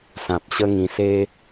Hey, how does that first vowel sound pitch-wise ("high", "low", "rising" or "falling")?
low